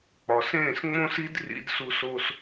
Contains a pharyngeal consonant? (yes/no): no